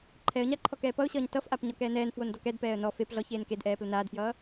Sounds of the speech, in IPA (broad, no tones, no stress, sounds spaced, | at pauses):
ǃʰ ɛ ə̯ ɲ a ǃʰ ɔ k ɛː p ʌ ʊ̯ ɕ ʌː ɲ t ʌ f ʔ a p ɲ ɔ k ɛː n ɛː n f w o n d ɔ k ɛ d p ɛː ə̯ n ɔ f e p ɮ ɔ ç eː n k e d ʔ ɛː p l ə n aː d f j ʌː